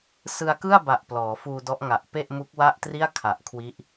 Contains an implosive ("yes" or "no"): no